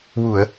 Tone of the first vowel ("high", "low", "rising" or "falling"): low